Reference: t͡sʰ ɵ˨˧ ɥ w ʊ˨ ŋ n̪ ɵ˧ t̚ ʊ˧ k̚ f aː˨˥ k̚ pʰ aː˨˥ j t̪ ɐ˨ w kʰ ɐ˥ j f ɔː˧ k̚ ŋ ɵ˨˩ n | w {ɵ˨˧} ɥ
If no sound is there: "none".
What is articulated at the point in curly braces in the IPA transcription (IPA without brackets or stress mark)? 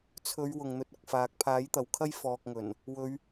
ɵ˨˧